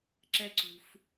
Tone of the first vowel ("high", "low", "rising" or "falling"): high